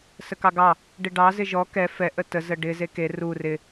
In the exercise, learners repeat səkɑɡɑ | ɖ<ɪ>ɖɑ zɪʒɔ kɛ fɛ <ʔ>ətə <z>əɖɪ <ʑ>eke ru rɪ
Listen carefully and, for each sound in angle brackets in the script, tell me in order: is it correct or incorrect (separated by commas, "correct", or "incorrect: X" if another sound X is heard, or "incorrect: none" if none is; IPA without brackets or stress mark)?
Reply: correct, correct, correct, incorrect: z